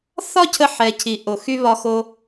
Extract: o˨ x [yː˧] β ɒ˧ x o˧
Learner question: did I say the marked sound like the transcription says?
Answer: no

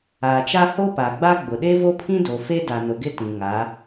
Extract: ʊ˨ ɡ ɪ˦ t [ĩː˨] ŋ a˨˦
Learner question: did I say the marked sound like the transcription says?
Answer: no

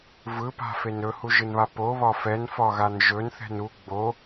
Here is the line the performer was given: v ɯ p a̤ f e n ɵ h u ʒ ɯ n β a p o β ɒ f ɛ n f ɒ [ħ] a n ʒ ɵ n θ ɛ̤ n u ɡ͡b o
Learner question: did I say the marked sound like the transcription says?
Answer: no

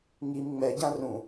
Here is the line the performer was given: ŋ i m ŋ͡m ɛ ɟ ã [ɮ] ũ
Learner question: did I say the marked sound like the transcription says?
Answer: no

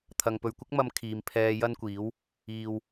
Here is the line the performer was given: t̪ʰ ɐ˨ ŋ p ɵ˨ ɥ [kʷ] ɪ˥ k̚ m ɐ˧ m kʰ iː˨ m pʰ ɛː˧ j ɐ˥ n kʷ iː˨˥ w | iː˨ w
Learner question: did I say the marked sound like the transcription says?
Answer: yes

